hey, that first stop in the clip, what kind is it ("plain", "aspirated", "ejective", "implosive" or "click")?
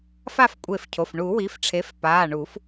ejective